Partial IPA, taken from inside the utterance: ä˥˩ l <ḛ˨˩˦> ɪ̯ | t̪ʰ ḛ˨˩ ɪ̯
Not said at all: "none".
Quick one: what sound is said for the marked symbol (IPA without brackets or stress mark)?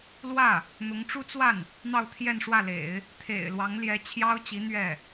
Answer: ḛ˨˩˦